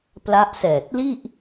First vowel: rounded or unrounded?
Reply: unrounded